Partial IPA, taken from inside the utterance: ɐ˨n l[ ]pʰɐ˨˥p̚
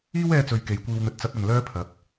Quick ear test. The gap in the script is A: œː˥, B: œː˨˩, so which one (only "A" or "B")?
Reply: A